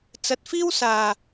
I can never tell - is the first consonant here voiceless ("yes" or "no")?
yes